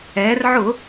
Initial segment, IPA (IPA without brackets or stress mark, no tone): ɛː